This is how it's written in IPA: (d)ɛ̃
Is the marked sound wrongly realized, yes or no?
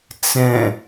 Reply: yes